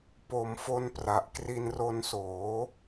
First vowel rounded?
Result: yes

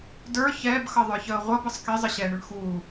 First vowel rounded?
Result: no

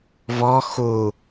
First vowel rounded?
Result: yes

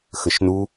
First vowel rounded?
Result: no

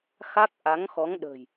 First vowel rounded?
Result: no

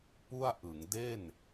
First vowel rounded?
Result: yes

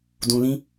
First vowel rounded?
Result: yes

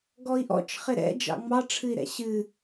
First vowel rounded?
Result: yes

